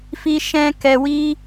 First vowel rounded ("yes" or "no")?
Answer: no